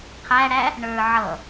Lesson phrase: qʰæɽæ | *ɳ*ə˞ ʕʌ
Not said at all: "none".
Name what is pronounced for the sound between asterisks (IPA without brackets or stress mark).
ɳ